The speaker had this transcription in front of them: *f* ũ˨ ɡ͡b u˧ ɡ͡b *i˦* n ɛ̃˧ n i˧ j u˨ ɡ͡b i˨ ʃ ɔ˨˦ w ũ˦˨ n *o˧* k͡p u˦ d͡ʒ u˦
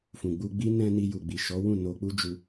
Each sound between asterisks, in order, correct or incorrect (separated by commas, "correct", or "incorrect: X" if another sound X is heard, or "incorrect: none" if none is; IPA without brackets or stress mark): correct, correct, correct